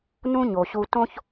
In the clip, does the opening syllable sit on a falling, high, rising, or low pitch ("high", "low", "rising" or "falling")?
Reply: high